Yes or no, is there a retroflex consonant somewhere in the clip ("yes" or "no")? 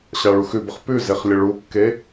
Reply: yes